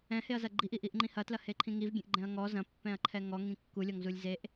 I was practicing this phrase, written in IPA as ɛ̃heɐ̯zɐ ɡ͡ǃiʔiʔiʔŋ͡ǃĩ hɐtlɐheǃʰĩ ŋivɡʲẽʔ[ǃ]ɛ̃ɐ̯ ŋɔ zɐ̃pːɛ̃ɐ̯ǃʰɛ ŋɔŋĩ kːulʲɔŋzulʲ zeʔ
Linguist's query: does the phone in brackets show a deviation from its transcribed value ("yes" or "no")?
yes